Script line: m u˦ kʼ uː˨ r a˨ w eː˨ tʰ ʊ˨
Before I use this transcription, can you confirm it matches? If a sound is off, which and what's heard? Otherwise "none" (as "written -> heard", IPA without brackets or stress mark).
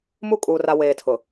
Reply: none